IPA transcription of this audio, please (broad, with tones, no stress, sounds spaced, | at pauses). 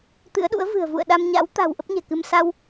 t̪ ɨ̰˧˥ ə̯ ɗ ṵ˧˥ ə̯ v ɨ̤˨˩ ə̯ v ṵ˧˨ ə̯ ɗ a˧ m ɲ a̰˧˥ w t̪ a̤˨˩ w ʔ ə˦˥ p̚ ɲ ɛ̤˨˩ k ɨ˧ m s a˧ w